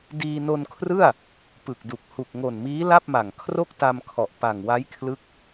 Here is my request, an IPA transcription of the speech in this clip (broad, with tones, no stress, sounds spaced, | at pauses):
d iː˧ n o˧ n kʰ r ɯ˥˩ a̯ | p ɯ˨˩ k̚ d u˨˩ k̚ h u˨˩ k̚ ŋ o˨˩ n m iː˦˥ l a˥˩ p̚ m a˨˩ ŋ kʰ r o˥˩ k̚ t a˧ m kʰ ɔ˨˩ ʔ p a˨˩ ŋ w a˦˥ j kʰ l ɯ˦˥ k̚